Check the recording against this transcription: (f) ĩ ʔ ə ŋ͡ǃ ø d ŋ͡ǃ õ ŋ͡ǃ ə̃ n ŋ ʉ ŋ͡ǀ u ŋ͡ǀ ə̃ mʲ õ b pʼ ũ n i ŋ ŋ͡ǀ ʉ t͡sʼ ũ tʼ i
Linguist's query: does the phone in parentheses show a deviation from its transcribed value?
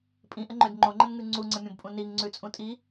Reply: yes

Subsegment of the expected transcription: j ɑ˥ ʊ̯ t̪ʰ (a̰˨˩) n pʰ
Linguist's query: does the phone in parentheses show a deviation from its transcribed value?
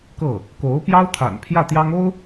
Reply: no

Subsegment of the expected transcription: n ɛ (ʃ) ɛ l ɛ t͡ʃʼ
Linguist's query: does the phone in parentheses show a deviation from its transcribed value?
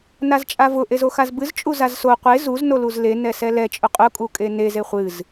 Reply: yes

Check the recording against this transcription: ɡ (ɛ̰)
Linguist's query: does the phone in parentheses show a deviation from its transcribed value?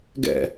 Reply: no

